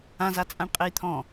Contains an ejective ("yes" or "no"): yes